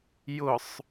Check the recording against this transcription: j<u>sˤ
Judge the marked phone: incorrect: ʊ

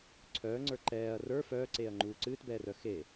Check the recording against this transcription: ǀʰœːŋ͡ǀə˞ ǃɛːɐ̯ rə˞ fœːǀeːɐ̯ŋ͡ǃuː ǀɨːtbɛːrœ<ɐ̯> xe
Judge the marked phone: incorrect: none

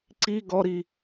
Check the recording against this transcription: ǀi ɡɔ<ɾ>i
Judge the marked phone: correct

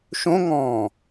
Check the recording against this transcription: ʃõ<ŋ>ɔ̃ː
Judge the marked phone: correct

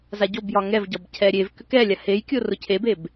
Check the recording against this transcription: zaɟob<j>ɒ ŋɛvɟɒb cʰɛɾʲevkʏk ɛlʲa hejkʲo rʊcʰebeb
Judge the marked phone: correct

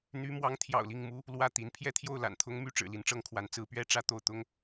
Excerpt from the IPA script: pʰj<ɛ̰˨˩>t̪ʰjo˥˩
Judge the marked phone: incorrect: ɛ˥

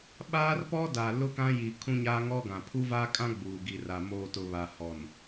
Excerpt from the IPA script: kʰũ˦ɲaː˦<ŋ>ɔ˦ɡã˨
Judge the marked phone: correct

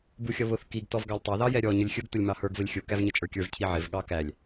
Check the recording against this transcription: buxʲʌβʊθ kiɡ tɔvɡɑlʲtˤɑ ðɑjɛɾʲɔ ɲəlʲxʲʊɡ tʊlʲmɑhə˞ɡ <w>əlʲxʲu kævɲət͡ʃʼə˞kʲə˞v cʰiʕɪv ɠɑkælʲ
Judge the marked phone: incorrect: v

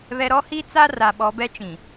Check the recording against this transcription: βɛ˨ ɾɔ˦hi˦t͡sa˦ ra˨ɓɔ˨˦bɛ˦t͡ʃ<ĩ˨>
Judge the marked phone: correct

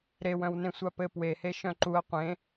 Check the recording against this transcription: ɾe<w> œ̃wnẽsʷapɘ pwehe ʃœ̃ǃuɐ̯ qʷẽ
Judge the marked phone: correct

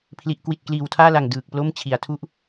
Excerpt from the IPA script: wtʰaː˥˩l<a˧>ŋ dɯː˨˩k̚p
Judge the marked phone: incorrect: a˨˩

